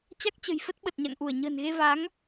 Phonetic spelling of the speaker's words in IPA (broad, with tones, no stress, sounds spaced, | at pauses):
t͡ɕ a˦˥ k̚ t͡ɕ ə̤˨˩ j f ə˦˥ t̚ ɓ ə˨˩ t̚ ɲ a̰˧˨ ŋ ʔ u˧˩ ə̯ ɲ ə̤ː˨˩ n ɣ e˧ v a˨˦ ŋ